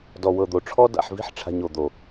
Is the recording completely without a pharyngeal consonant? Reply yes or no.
no